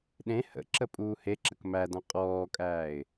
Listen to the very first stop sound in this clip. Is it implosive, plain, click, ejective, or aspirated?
implosive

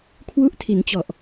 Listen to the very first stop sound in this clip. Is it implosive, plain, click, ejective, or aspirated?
aspirated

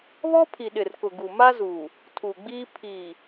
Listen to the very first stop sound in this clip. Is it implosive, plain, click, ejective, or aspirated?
aspirated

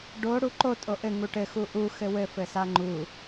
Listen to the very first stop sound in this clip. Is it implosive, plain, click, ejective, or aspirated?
plain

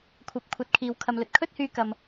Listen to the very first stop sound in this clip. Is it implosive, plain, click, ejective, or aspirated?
aspirated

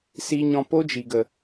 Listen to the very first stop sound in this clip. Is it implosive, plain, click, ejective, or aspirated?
plain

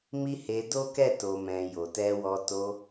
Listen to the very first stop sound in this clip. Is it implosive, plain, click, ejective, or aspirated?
plain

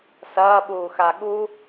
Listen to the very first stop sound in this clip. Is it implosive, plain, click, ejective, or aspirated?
implosive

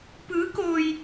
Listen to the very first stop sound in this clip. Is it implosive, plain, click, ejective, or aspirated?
plain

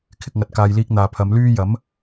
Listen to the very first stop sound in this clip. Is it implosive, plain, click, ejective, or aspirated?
aspirated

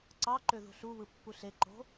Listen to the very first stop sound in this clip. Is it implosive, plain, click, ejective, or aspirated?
click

